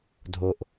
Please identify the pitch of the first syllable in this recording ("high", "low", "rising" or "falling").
low